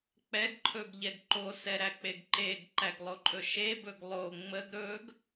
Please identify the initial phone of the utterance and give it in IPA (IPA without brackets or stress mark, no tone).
k͡p